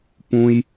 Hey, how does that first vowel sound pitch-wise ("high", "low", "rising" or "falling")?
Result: high